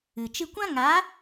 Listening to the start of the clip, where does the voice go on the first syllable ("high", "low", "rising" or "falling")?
low